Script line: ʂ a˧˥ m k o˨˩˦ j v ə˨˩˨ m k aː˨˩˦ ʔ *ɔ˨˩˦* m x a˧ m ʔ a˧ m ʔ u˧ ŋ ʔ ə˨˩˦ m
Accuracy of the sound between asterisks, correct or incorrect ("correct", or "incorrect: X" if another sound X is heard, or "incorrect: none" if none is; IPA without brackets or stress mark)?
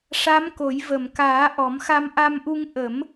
correct